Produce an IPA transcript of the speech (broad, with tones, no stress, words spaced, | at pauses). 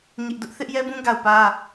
ɲɪ˦ʔdʊ˦ʔ θɪ˦ʔjɛ˦bũ˦ ɡa˦˨ʊ̯pä˦